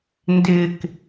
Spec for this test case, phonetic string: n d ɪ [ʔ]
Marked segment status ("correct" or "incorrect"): incorrect